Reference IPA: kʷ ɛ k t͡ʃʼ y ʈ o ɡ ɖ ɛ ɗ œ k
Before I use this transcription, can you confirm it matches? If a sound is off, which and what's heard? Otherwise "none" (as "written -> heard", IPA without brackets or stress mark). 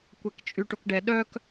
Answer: ɡ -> k